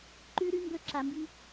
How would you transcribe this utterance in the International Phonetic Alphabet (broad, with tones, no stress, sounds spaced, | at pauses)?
ǃ ʉ˦ ɾ ʉ˦ m b ɵ˦˨ ǁ a˨ m b i˦